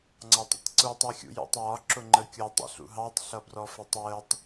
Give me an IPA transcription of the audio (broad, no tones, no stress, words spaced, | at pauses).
ŋ͡ǀɑtˤə̰tˤǀutˤ ixʲṵjṵtˤjɒ ǁʊŋ͡ǃəkʲʊ tˤḭɬṵɦɑtˤ ɬʌbrɔfɪtˤjətˤ